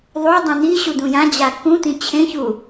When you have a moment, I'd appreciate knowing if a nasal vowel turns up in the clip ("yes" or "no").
yes